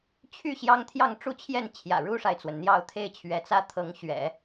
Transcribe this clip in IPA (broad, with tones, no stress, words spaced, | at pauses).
t͡ɕʰy˥˩ ɕjɑ˥ŋt̪ʰjɑ˥˧ŋʈ͡ʂu˥˧t͡ɕʰjɛ˥˩n t͡ɕʰjä̰˨˩ɻu˥ʂa˨ɪ̯t͡swə˩n n̪jɑ˥˧ʊ̯ t̪ʰe˥˩ɪ̯t͡ɕʰɥɛ˧˥t͡sä˥ t̪ʰɤ˧˥ŋɕɥɛ̰˨˩˦